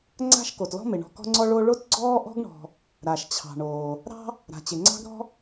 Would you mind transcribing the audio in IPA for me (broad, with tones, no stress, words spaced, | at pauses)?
ŋ͡ǀa̤˥ʃko˩tlɔ̤˥mɪ˩ ɳɔ̤˨kɔ̤˦ŋ͡ǀɔ˦ ɭo˦ɭo˥t ɡ͡ǀɔː˥ʔɔ̤˥ɡɳɔ̤˨ | ɾa˩ʃt͡ɕʰɑ̤˩ ɳoː˩ | ɾɑ̤˦ | ɾa̤˩t͡ɕɪ˩ ŋ͡ǀɑ̤˥ɡɾɔ̤˥